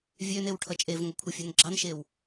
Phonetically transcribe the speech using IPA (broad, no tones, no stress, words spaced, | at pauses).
vʲønew ʈʰʌt͡ʃʼevŋʷʌ kʷʰʌfʲønɡ͡ǁɑnʃew